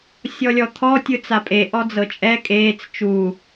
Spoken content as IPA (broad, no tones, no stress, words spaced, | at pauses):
sʲɔlʲɔt̪ʰɔ tʲɯt͡sapʼe ʔɔd͡zɤt͡ʃʼɛ kʼeːt͡s t͡ʃu